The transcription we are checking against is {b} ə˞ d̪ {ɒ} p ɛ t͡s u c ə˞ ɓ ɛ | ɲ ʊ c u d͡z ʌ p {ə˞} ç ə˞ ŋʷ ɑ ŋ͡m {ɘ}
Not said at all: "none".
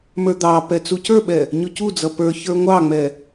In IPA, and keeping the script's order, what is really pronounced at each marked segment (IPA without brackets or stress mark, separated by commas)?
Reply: m, ɑ, ə˞, ɛ